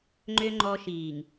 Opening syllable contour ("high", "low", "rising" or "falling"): high